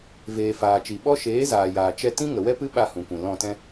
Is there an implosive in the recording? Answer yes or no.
yes